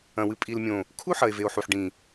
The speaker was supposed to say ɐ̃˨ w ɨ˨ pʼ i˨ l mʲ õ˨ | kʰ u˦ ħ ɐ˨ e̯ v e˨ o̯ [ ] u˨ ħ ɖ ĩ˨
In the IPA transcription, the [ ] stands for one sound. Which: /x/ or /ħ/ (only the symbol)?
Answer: ħ